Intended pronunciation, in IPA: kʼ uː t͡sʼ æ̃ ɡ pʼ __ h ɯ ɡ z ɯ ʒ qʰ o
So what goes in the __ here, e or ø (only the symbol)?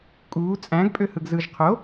ø